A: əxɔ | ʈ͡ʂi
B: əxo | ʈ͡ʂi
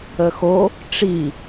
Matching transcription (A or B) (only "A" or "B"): B